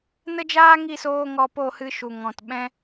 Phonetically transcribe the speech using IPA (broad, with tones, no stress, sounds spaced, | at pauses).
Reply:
n ə˦ d͡ʒ aː˦ ŋ i˦˨ s oː˧ ŋ ɔ˧ p o˦˨ h ɨ˧ ʃ u˨ ŋ ɔ̃˨ t ɓ ɛ̃˦